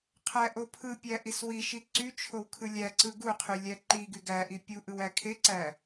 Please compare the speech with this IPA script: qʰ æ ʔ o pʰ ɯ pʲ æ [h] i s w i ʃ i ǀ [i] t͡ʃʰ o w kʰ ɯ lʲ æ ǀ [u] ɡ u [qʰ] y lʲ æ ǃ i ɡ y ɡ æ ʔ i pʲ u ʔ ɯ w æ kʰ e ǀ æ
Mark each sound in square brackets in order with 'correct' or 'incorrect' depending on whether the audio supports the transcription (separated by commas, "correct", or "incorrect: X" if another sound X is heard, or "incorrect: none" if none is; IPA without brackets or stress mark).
incorrect: ʔ, incorrect: y, incorrect: ɯ, correct